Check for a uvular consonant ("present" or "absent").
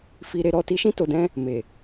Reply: absent